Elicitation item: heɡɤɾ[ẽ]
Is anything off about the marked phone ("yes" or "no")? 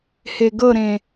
no